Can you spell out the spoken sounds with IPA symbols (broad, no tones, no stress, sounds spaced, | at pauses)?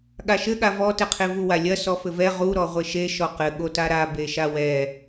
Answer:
ɠ a ʃ ɘ ɠ a v ɔ t ɛ qʰ e v u w a lʲ ɐ s ɔ f ɘ v ɛ ʁ u ɾ ɔ ʁʷ e ʃ e ʃ ɔ q ɘ ɠ o t a ɾ a b e ʃ a w ɛ